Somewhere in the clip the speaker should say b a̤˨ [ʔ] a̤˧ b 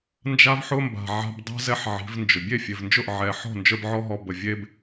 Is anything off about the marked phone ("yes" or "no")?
yes